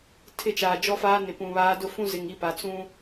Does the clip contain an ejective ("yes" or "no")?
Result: no